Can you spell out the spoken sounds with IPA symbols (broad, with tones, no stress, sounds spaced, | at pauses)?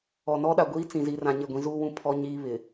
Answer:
ɔ˨ n ɔ˦ ɗ a˨ ɡʷ iː˦ t͡s ĩ˨ z i˨ r ã˦ ɲ ɪ˦˨ ɡʷ ĩ˦ z uː˦ w ũ˦ pʰ ɔ˦ ɲ iː˦ β ɪ˨